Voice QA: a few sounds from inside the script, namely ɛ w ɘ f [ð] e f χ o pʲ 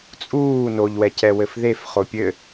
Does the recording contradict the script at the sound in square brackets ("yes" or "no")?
no